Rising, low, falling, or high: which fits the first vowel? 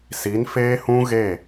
rising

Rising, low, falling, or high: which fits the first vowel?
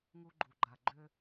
high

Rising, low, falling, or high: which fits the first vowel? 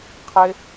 high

